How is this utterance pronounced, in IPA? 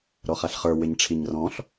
ɾɔχaɬχə˞ wɪɲʈ͡ʂʰiɲrɔ̃ɬ

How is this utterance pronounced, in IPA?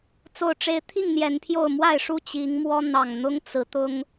t͡so˨˩ʊ̯ʈ͡ʂe˨˦ɪ̯t̪ʰi˥˨ŋ n̪jɛ˨˦npʰjo˥˨ʊ̯ mwa˥˨ɪ̯ʂu˥˨ t͡ɕi˨˦ŋmwɔ˦ n̪ɑ˨˩ŋn̪ʊ˦ŋ t͡sɹ̩˨˦t̪ʊ˦ŋ

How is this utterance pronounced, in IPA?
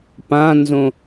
pãnzõ

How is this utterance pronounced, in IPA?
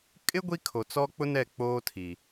kʼɪ˦ ɡʷi˦kʰo˨t͡sɔ˦ k͡pʊ˦nɛ˦˨ k͡poː˦tʰi˨

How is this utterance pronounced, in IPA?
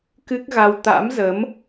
kɨ˦˥k̚ɣa˧w t̪a̰˧˥mzə˨˦m

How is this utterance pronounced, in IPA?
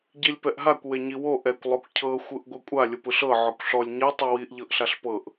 ɟilʲpɛʔɦakʷ weɲiwo ʔɛkʷ lˠokʷcʰɤ xʷɯʔɡʷɯkʷʼa lʲɯpɯɬɤ ʕɔkʷɬɔlʲ ɲɛ tˤuwiʔ ʎɤʔɬaɬpɤʔ

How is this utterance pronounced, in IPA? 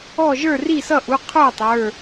ɔ˥˨ ʒə˞˥˨ri˥˨sʌ˥˨ʔu˩˧˩ qʰə˞˥˨ tˤə˞˩˧˩

